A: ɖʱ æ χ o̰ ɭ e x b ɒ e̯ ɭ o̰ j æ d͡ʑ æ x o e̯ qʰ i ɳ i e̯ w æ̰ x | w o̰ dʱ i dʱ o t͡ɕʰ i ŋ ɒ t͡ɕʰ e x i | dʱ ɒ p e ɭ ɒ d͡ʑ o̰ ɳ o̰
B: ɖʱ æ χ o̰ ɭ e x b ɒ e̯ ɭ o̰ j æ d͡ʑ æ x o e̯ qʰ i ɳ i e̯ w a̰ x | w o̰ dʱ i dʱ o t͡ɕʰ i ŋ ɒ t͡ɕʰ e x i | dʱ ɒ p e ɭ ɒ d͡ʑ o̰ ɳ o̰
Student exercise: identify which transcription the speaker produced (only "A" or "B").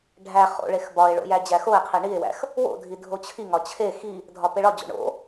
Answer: A